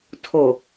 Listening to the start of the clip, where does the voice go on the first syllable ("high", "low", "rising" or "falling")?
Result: low